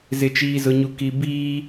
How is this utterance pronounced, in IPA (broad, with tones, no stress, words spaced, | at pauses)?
zɪ˨t͡ʃiː˨zʊ˨ɲu˨ ki˨ biː˦